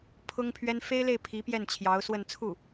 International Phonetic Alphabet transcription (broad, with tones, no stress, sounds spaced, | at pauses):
pʰ ʊ˥ ŋ pʰ ɥ ɛ˥ n f e˥ ɪ̯ l e˥˩ ɪ̯ pʰ i˧˥ p j ɛ˥˩ n t͡ɕʰ j ɑ˧˥ ʊ̯ s w ə˥˧ n t͡sʰ u˥˩